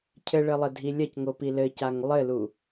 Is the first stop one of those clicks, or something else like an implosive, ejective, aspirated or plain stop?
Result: aspirated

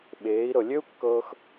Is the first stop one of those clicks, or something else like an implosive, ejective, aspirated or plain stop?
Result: implosive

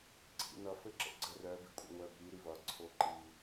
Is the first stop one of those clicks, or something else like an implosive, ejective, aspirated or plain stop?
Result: click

